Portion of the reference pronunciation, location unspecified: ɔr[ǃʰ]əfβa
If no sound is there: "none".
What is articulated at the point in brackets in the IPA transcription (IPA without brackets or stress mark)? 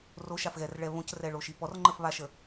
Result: ŋ͡ǃ